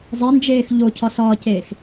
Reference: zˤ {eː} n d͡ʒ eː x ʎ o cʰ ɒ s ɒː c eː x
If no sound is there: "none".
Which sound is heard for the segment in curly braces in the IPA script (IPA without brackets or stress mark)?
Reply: e